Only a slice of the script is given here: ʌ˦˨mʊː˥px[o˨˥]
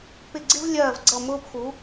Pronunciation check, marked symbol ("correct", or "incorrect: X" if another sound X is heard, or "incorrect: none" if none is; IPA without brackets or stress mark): incorrect: u˨˥